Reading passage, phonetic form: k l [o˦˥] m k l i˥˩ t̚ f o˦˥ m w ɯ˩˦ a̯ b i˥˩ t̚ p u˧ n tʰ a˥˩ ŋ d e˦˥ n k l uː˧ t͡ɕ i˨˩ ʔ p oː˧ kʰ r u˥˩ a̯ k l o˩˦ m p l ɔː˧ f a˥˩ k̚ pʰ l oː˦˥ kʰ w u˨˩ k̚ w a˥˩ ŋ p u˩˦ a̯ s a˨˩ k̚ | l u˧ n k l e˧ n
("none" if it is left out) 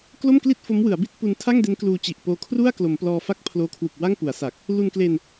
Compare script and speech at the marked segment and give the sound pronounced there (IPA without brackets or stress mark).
o˥˩